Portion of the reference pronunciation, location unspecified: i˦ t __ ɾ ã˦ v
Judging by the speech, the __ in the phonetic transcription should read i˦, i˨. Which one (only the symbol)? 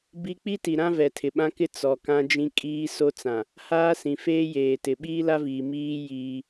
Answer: i˨